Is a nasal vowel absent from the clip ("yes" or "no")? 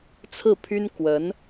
yes